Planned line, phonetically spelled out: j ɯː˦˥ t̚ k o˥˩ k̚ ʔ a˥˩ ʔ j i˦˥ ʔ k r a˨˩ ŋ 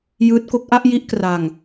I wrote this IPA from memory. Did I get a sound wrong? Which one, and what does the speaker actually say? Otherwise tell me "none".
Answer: none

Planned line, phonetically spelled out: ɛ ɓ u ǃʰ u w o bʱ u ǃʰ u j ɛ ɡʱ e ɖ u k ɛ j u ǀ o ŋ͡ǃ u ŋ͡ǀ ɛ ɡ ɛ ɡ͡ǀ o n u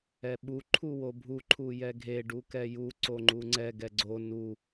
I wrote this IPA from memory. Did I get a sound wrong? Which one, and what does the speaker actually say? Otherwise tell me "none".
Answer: none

